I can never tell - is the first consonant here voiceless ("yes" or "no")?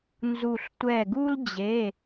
no